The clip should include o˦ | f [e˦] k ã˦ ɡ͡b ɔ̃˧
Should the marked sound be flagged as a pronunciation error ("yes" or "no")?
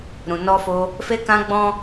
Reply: no